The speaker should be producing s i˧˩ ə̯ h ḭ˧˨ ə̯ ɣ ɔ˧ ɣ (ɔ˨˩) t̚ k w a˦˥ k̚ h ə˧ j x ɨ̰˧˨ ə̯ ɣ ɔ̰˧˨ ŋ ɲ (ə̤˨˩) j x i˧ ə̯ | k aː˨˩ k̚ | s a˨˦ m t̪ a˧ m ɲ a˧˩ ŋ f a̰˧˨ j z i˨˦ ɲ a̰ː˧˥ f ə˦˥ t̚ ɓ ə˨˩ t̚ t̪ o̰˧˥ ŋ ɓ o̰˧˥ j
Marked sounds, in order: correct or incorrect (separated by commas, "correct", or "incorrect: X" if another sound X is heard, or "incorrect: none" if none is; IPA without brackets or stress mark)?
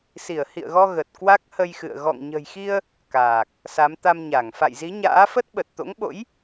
incorrect: ə˨˩, correct